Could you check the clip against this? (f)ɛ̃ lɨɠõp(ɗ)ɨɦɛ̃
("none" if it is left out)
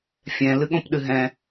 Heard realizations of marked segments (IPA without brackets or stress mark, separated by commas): fʲ, ɗ